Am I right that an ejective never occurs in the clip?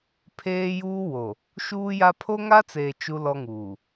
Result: yes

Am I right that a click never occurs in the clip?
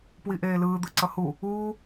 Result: no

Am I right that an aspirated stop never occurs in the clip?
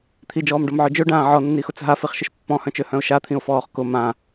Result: no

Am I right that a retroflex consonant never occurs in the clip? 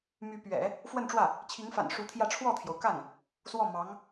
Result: no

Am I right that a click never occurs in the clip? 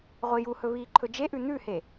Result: no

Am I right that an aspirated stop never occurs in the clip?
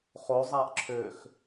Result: no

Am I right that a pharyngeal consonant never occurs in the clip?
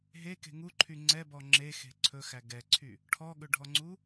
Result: yes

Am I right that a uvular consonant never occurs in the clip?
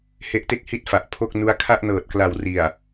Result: yes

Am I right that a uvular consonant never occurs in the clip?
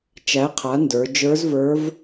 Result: no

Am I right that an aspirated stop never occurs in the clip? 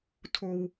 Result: no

